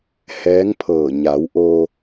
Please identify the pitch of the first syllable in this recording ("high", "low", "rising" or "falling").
rising